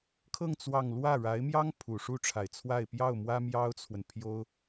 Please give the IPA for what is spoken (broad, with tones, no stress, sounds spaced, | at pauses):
kʰ ɤ˥˧ ŋ t͡s w ɑ˥˧ ŋ l w ä˥˩ ɻ a˧˥ ɪ̯ m j ɑ˥ ŋ pʰ u˨˩ ʂ u˥˩ ʈ͡ʂʰ a˨˩ ɪ̯ t͡sʰ w a˥˧ ɪ̯ p j ɑ˥˩ ʊ̯ m w ä˥ m j ɑ˥ ʊ̯ t͡sʰ w ə˨ n pʰ j o˥ ʊ̯